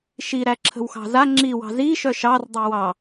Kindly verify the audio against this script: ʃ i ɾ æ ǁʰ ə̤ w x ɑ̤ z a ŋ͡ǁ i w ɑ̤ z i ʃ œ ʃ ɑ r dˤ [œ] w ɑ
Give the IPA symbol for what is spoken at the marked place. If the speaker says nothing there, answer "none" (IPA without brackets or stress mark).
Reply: œ